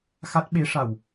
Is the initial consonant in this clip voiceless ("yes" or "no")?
yes